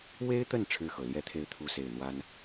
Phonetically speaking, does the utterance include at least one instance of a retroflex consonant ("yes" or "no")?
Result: yes